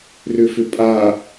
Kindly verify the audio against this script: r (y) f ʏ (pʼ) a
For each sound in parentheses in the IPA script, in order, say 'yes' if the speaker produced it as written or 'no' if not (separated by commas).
no, yes